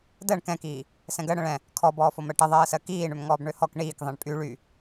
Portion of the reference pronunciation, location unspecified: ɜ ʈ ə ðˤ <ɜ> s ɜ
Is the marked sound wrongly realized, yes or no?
yes